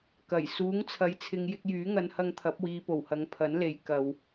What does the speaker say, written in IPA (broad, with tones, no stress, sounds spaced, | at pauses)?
k ɐ˨˩ j s uː˨˥ ŋ t͡sʰ ɐ˨˥ j t͡sʰ ɪ˨˧ ŋ j ɪ˧ k̚ j yː˨˥ ŋ ɐ˨˧ n h ɐ˧ ŋ t̪ʰ ɐ˨˥ p̚ w iː˨˧ p o˨˩ w h ɐ˨˧ ŋ pʰ ɐ˨˥ n l e˨ j k ɐ˨ w